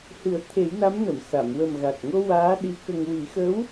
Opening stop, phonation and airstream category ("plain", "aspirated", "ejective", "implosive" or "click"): aspirated